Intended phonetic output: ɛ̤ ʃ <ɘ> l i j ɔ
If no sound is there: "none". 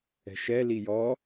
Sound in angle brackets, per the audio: ɛ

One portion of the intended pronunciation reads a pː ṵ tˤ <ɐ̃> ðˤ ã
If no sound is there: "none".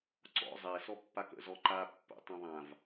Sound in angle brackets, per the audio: ɐ̃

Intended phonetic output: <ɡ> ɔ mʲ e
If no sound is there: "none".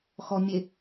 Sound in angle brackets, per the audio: x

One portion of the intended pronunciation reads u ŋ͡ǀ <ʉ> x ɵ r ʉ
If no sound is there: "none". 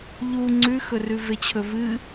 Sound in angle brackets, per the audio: ʉ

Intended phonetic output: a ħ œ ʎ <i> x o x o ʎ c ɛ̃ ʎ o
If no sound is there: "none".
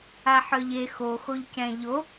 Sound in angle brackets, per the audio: e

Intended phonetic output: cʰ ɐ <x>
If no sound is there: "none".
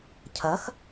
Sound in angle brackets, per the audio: x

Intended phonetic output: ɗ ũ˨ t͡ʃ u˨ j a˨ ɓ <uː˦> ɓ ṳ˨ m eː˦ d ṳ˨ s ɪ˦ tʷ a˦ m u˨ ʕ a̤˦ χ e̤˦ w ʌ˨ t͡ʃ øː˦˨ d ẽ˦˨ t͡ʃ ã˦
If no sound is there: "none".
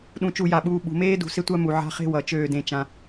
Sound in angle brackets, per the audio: uː˨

